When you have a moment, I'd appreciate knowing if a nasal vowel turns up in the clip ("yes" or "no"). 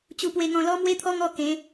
yes